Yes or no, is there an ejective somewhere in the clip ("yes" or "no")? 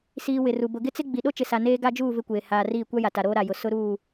no